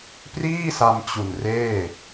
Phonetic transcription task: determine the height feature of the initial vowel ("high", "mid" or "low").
high